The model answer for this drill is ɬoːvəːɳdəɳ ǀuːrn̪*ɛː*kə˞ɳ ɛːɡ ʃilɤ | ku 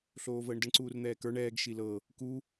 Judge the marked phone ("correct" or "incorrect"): correct